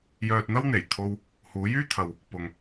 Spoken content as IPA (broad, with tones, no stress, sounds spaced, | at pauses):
j œː˧ t̚ n̪ ɐ˥ w n̪ e˨˩ j t̪ʰ o˧ w | h uː˨˧ j yː˥ t̪ʰ ɐ˨ w | p ʊ˨ ŋ